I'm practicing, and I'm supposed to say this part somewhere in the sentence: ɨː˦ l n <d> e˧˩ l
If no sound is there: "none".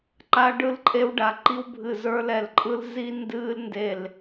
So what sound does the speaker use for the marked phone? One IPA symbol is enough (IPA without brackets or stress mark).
d